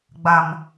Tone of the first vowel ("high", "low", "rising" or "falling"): low